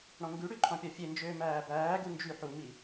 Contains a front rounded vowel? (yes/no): yes